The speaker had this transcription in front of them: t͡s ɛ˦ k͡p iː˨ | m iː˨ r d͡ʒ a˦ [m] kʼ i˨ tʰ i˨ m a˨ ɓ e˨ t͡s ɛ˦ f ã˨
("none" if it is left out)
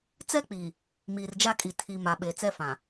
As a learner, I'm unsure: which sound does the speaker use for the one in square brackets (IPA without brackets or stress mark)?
none